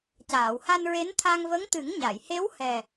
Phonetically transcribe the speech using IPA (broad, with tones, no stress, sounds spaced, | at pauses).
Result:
c aː˨˩˨ w h a˧ n ɹ e˧˥ n t̪ʰ a˧ ŋ v ə˧˥ ŋ t̪ ɨ˨˩˦ ŋ ɲ a˨˩˨ j h e˧˥ w h ɛ˨˩